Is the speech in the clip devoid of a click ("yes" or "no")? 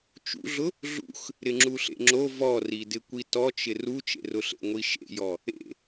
no